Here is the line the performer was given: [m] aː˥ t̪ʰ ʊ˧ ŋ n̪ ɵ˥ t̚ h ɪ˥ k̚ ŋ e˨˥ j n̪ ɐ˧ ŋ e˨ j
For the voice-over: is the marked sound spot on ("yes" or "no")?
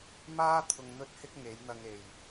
yes